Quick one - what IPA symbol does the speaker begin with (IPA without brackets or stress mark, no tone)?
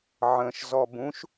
ʕ